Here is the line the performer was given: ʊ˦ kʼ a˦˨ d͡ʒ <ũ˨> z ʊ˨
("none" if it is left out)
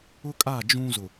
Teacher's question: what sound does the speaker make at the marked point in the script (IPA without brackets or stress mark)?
ũ˦